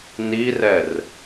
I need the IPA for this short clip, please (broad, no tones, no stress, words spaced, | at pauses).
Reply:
nirɛr